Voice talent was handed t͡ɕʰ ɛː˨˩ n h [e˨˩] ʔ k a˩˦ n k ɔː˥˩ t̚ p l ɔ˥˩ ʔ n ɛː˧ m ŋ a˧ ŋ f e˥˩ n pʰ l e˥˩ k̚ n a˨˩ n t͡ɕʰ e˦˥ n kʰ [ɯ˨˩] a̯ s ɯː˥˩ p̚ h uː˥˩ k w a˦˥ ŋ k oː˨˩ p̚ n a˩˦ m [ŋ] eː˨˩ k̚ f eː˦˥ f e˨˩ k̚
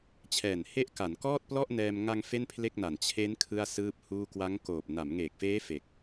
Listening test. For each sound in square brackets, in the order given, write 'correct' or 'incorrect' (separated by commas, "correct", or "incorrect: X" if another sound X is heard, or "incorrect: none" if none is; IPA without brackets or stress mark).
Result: incorrect: e˦˥, incorrect: ɯ˥˩, correct